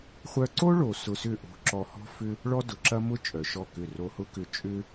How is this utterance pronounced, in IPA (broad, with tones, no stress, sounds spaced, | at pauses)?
χʷ œ˧ ǀ o˦ ɭ o˨ s ʊ˧ s ʏ˦˨ ʔ o̤˧ ǁ ɔ˧ h ɔ̤˦ f ʏ˦ | ɭ ɔ˦ d ʊ˨ ǁ ɐ˦ m ʊ˦ t͡ʃʼ œ˨ ʃ ɔ˦˨ k ʏ˦˨ r o˧ h ʊ˦ k ʏ˧ t͡ʃʼ ʏ˦